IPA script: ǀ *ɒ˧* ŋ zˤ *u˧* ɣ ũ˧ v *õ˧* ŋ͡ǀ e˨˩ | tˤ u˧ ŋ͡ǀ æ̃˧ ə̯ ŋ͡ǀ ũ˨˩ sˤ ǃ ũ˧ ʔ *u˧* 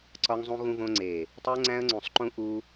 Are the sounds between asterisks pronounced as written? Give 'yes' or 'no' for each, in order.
yes, no, yes, yes

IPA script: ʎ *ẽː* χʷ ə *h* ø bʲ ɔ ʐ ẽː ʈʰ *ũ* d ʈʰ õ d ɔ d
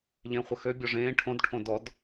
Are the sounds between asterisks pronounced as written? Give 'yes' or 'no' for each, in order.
yes, no, no

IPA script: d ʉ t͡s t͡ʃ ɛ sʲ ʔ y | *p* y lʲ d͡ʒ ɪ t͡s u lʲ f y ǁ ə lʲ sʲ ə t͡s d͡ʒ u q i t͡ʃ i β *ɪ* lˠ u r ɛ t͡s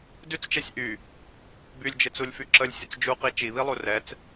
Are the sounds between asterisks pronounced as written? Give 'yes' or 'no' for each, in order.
no, no

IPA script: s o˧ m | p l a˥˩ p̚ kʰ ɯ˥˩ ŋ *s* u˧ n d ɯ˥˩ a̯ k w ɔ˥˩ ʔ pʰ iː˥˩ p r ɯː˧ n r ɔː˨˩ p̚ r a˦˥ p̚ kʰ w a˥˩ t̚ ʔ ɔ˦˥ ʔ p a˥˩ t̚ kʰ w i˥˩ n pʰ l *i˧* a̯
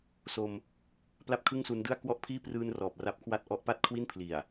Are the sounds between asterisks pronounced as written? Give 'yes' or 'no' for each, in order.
yes, no

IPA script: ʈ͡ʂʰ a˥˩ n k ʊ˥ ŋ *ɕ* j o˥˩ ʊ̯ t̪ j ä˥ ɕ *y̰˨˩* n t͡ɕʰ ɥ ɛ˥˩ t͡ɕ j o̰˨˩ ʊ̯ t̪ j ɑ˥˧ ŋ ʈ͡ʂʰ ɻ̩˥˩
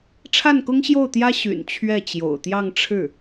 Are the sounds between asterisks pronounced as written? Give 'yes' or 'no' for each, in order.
yes, yes

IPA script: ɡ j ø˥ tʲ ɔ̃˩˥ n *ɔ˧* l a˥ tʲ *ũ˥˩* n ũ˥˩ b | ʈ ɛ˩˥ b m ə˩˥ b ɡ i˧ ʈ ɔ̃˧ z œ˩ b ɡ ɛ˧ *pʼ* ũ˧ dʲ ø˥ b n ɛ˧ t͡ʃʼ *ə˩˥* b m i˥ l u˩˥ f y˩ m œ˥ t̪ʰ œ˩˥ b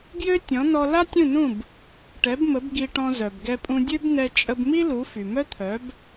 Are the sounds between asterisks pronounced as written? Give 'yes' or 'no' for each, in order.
yes, yes, yes, no

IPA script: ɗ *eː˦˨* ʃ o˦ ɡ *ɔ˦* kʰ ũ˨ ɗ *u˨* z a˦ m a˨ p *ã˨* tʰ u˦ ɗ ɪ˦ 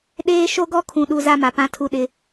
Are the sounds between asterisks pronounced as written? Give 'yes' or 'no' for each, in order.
no, yes, yes, no

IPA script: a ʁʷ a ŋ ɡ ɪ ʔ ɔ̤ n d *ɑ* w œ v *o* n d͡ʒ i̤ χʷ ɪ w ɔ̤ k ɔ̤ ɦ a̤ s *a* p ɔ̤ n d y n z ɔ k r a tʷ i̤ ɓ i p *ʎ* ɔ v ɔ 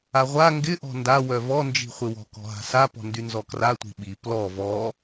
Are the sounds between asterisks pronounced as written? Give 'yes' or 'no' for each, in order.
no, no, yes, no

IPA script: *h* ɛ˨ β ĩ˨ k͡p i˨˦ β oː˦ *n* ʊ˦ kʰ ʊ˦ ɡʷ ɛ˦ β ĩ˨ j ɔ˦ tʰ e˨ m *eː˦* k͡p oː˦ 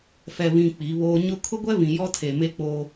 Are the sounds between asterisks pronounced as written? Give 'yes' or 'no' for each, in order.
no, no, no

